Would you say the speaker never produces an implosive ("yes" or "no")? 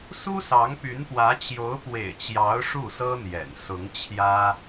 yes